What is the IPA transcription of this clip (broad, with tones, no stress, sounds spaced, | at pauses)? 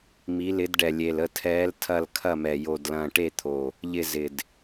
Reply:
m i˨˦ l ɪ˨˦ d ɖ ɛ˨˩ lʲ e˨˩ l ə˦˨ tʰ ɛː˨˦ l tʰ ɐ˦˨ l kʰ ɐ˦˨ m ɛ˨˩ j o˨˩ d l ɐ̃ː˨˩ ʈ e˦˨ t̪ʰ o˨˩ | ʎ ɪ˦˨ z ɪ˨˩ d